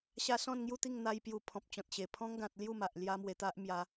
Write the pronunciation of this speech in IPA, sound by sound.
ɕa˧ sɔ̃˥˧nŋju˥˧t̪i˥˧ŋ n̪a˦jpju˧ pʰɔ̃˨p̚t͡ɕɔ̃˨t̚ɕe˨˩ pʰɔ̃˦ŋɡã˨t̚ lju˥˧ma˨ʔ lja˦mwe˧t̪a˦ʔ mja˧

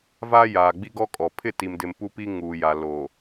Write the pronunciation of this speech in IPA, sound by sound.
va˦jaː˨ ɡ͡bi˦ɡɔ˦ kʼɔ˨ pʰɪ˦˨ti˨mdɪ˨m pu˦pi˦ŋuː˨ja˨ lo˨

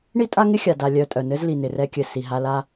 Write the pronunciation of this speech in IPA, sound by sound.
ɳi˥tʼa˥ŋɪ˥ xʲa˨ da˨ lʲœ˨ tʼœ˨nɘ˥zli˨ nɪ˩rɛ˦kʲɘ˨ si˨ɦa˦la˥

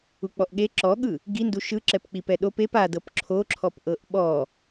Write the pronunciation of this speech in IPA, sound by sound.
uk͡pɔʔɠe ǁɔɠɯ | ɡindu ʃɯ ǁɛpk͡pipɛɗop ep adɤp ǁʰoǁʰɔp ʔɤʔɓɔ

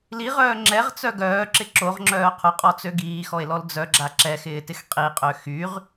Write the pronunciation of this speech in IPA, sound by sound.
liʁœː ŋ͡ǁɛʁt͡sœ ɡœːǁɪ ǁoʁŋ͡ǁœː qʰʊqʼɔt͡sø ɡiːxɔe̯lɔl d͡zœɡ͡ǁa ǁɛxɪːtɪx qʼiqʼø xyʁ

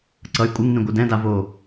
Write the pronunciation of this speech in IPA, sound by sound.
ǀʌj kʷʼɯŋnĩ ɡʷɯdɛ̃da vo

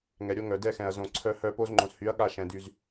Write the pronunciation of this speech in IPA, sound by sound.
ŋɛ˨ɾʲo˦ŋœ˨ dɛ˦xɛ̃˨ɐ̯ zõ˨ ǀʰœ˦hœ˦ po˦zŋ͡ǃõ˨shy˨˦ɐ̯ ɠa˦ʃɛ̃˨ dy˨z

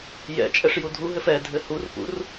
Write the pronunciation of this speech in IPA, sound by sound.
jɛ̰ t͡ʃʼɛʂjudʱuɦɘf ɛ dʱɘhurpṵr

